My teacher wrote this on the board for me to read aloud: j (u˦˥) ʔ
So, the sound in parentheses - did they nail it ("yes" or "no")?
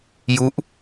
yes